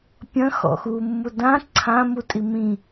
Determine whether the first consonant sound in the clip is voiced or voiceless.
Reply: voiceless